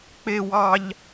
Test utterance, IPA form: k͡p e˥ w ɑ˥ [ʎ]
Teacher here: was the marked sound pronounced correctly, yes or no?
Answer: yes